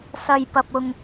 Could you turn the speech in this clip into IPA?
sɐ˨j pɐ˨p̚ʊ˨ŋ

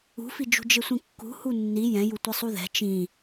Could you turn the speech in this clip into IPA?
ṳfid͡ʒṳ d͡ʒɪsʷĩkːṳ hunːi jɛ̃ju tʷisˤuðɛ̤ t͡ʃĩ

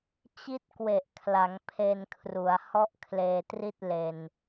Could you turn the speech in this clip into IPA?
t͡ɕi˥˩t̚kwe˨˩ʔkʰla˩˦ŋ pʰe˧nkʰru˩˦a̯ hɔ˥˩ʔkʰleː˧tri˥˩t̚ le˧n

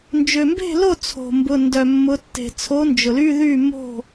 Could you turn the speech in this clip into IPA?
nd͡ʒø˩mbe̤˥˩lo˥˩ t͡sʰo̤˩mbʊ˩˧˩ ndœ˩mːʊ˩˧tːe̤˩ t͡sʰo˨˥nd͡ʒʊ˩ly˧˥˧ðy˥˩ mo̤˥˩

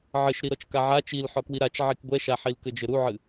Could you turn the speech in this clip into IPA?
ʕɘʃɾiɾɔt͡ʃ kaʕa t͡ʃil ħɔkwiɾat͡ʃ ʕikɡʷɛʃaħil kɘd͡ʒɘɾuʕɨ

